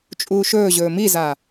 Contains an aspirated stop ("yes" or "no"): no